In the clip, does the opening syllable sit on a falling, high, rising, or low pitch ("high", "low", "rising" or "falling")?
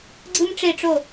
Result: high